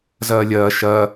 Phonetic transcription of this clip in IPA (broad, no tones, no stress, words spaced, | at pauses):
zɐːlʲɐː ʃɐ